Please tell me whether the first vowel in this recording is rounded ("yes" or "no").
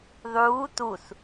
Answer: yes